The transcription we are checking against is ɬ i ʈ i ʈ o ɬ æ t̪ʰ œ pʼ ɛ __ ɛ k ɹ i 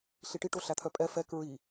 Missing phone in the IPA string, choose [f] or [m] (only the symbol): f